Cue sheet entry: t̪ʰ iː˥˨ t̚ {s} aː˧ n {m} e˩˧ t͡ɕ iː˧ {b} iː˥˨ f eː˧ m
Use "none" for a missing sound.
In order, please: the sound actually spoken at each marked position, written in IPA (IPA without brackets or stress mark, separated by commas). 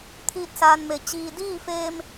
s, m, d